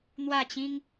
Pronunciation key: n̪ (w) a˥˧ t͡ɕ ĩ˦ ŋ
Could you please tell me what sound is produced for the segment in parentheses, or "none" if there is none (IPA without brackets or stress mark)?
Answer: w